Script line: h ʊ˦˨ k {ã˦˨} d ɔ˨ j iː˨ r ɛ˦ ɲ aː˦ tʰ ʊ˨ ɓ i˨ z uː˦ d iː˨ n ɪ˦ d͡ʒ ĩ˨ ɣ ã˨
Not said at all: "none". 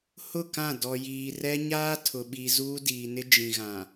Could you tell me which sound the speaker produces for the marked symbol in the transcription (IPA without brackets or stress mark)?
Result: ã˦˨